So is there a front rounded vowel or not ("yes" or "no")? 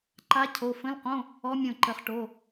no